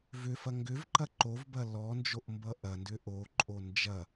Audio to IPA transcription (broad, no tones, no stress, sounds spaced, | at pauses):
v ʏ f ɐ ŋ ɡ ʏ v ǃ ɐ ǃ o v b ɐ l ɔ n d͡ʒ o ʔ m b ʌ ʔ ɐ n d ʏ ʔ o ǃʼ o n d͡ʒ ɐ